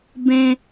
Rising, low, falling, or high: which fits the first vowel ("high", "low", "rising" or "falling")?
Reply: high